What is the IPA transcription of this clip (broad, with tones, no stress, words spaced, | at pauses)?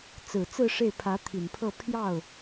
t͡sɹ̩˨˩t͡sɹ̩˥˧ ʂe˥˩ɪ̯pʰä˧˥t̪ʰi˨˩npʰɤ˥˧ pʰjɑ˥˩ʊ̯